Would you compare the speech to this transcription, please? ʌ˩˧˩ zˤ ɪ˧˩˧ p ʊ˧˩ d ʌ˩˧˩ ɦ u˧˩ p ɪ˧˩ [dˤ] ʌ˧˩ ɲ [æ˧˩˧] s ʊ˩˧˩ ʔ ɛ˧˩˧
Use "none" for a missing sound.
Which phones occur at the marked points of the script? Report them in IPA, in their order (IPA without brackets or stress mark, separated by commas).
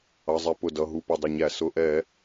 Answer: dˤ, æ˧˩˧